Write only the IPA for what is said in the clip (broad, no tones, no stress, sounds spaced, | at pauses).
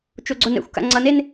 t͡ʃ o ɡ͡ǀ o n ɛ̰ xʷ k a̰ ŋ͡ǀ ʌ n e n